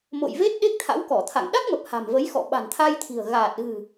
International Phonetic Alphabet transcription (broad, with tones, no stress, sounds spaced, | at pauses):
m o̰˧˨ j v e˦˥ t̚ ɗ e˦˥ k̚ t̪ʰ a̰˧˥ w k ɔ˧˩ t̪ʰ a̰˧˨ ŋ ɗ a˦˥ k̚ m ə˨˩ p̚ h a̤˨˩ m v ə˨˦ j x ɔ̰˧˨ ɓ a̤˨˩ n t̪ʰ a˧ j t̪ʰ i̤˨˩ ə̯ ɣ aː˨˩ t̚ ɣ ɨ̤˨˩